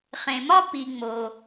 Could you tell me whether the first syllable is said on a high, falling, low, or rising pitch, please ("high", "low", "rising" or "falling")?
low